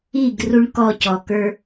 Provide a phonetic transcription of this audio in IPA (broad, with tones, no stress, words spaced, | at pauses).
i˥˧ɡ ru˥ɳkɔ˥˧cɔ˧kə˞˥